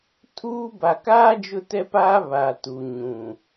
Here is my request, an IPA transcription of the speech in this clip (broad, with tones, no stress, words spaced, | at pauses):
tʰuː˦ ba˨kaː˦ d͡ʒʊ˦tɛ˦paː˦ βa˨tu˨ ɲũ˨